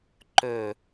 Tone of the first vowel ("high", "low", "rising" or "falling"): low